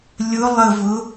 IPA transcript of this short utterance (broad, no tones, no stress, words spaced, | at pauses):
lʲʊ lˠəvʊ